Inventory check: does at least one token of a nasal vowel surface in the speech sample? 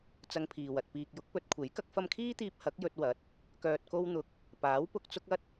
no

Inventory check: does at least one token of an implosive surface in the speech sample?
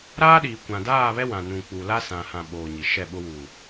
yes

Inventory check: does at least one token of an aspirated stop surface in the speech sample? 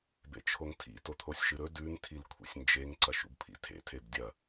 yes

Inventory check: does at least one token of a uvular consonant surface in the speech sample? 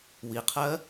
yes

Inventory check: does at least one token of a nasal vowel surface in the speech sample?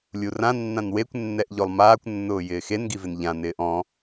yes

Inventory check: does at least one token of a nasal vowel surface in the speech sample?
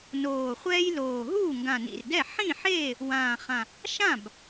yes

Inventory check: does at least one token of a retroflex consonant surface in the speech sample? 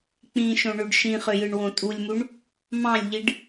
yes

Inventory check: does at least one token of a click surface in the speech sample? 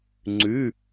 yes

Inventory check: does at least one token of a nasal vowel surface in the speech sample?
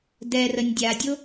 no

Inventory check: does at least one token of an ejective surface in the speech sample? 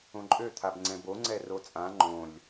yes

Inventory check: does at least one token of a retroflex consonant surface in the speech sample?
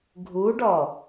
yes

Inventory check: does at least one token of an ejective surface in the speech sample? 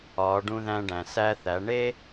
no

